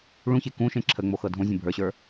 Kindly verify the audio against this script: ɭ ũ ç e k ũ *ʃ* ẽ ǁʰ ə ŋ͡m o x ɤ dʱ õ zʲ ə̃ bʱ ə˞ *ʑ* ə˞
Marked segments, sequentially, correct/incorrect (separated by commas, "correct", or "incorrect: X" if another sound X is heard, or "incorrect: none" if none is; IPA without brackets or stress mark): correct, incorrect: ɕ